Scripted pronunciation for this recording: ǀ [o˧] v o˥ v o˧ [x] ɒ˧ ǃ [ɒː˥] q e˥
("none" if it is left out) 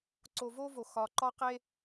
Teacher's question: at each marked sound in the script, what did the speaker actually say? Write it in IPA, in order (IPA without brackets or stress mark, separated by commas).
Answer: o˧, x, ɒ˥